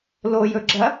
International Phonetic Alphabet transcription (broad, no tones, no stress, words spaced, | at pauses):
lojɵɡ͡ǁɐ